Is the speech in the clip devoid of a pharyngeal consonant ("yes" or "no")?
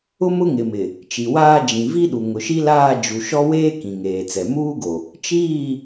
yes